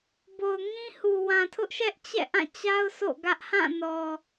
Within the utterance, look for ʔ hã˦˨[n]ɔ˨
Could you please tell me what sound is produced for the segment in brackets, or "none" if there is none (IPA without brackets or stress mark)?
n